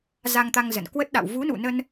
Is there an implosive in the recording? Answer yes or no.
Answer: yes